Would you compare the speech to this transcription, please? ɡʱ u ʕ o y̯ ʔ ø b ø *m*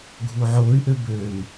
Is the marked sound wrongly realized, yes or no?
no